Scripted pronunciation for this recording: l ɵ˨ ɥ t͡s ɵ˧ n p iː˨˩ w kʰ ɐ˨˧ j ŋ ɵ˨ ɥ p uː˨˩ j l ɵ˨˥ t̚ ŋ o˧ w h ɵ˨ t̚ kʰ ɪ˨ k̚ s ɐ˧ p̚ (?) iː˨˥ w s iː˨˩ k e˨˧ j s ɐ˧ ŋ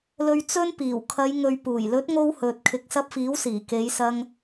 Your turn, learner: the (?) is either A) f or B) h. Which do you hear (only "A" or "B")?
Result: A